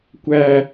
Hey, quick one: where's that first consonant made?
velum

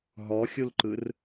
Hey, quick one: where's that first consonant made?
throat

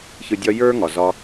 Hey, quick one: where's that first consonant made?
palate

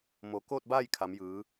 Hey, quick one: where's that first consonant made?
lips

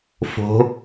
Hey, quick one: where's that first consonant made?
lips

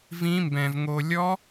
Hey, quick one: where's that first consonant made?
lips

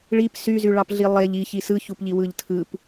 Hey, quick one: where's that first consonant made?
retroflex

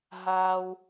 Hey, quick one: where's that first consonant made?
throat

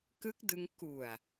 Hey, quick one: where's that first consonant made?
velum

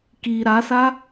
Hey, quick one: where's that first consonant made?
velum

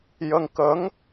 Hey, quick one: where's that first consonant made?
palate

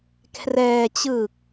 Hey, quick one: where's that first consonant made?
velum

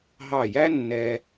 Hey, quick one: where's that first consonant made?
throat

